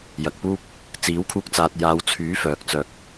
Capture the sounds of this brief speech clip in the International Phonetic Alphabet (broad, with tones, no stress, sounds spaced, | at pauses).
j ɐ˨ k̚ p uː˥ p̚ | t͡s iː˨˥ w kʰ uː˧ k̚ t͡s aː˨ t̚ j aː˨˧ w t͡sʰ yː˨˥ f œː˨ k̚ t͡s œː˧ k̚